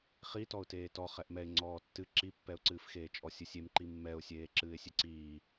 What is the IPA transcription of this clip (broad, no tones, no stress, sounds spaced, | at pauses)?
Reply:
χ i t ɔ ʊ̯ t eː t ɔ χ ɛ ʔ m ɛ ɪ̯ ŋ͡ǀ ɔː tː ɨ ǁ i pː ɛ ʊ̯ ǀ ɨː f x eː t͡ʃʼ ɔ sʲ ɨ sʲ e m ǃ i mː ɛ ʊ̯ sʲ eː ǁ ɨː ɪ̯ sʲ e ǀ iː